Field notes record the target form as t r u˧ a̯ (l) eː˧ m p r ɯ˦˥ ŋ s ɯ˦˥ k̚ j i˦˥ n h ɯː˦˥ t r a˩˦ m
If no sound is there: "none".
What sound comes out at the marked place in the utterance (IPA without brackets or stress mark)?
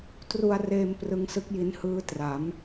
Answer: r